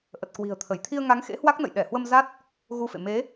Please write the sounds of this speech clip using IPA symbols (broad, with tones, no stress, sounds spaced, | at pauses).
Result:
ʔ ə˨˩ t̚ k w i̤˨˩ ə̯ t̪ʰ ə˧˩ j t̪ʰ i˧ ə̯ ŋ a˨˦ ŋ x ḛ˧˥ h w a˦˥ k̚ n ə̰˧˨ j ɗ ɛ˧˩ h w ə˧ m z a˦˥ t̚ | ɣ u˧ f ḛ˧˨ m e˨˦